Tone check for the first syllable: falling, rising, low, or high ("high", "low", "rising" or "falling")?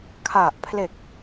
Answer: low